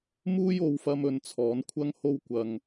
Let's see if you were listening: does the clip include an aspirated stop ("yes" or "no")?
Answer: yes